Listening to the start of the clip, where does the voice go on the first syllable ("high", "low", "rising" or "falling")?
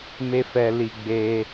high